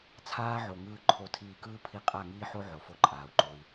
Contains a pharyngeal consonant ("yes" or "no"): yes